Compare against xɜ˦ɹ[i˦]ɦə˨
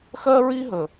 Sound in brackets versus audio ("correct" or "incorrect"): correct